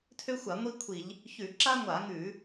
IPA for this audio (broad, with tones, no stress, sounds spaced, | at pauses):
tʰ ø˥ xʷ a˧˩˧ ŋʷ i˥ kʷʰ i˧˩˧ ʎ | ç ʉ˧˩˧ ǁ a˥ ŋʷ a˧˩˧ ŋ ʉ˧˩˧